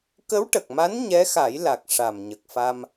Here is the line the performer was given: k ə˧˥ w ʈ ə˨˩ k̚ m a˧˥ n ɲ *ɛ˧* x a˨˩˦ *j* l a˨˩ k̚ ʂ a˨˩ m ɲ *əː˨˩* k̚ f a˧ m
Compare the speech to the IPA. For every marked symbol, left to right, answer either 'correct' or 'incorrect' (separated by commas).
incorrect, correct, incorrect